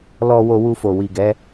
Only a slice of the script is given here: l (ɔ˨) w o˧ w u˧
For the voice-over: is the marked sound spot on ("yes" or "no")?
no